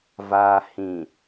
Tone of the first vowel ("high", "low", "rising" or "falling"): low